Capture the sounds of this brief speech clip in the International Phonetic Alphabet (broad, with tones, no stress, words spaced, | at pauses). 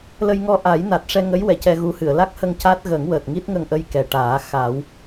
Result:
lə˧jŋɔ˧ʔa˨˩˦j na˨˩t̚ʂɛ˧ŋə˧˥jwɛ˨˩˨ cɛ˧ɣu˧˥hɨ˨˩˨ə̯ la˦˥k̚hə˧ŋ ca˦˥t̚ɣə˨˩˦ŋwəː˨˩t̚ ŋi˦˥t̚ŋə˧ŋʔə˧j kɛ˨˩ ʈaː˨˩˦ xa˨˩˦w